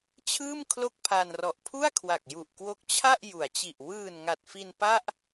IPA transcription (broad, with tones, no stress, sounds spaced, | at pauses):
t͡ɕʰ ɯː˥˩ m kʰ l o˥˩ k̚ pʰ aː˧ n r ɔ˨˩ ʔ pʰ u˥˩ a̯ kʰ w a˨˩ k̚ j u˨˩ ʔ k w o˦˥ k̚ t͡ɕʰ a˥˩ ʔ j u˩˦ a̯ t͡ɕ i˨˩ ʔ w ɯː˨˩ n ŋ a˨˩ t̚ f i˧ n p a˥˩ ʔ